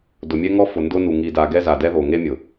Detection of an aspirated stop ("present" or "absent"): absent